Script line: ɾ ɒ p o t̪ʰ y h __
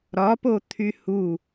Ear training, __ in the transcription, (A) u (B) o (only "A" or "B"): A